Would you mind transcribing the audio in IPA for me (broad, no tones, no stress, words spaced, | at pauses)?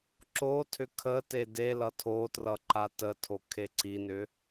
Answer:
ǁotʰʏ kʰə tedelʌ tʰotrʌ ǃatətʰo kʰeǀinʏ